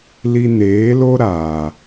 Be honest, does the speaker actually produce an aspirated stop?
no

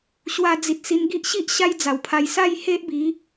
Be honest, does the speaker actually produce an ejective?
no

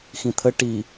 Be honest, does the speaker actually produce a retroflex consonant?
yes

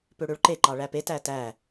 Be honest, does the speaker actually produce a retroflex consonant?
yes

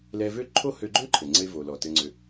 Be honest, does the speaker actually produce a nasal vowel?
no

